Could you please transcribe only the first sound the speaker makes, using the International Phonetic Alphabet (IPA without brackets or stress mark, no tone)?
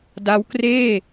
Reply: d